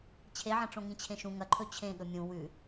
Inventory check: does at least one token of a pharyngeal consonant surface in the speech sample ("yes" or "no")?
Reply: yes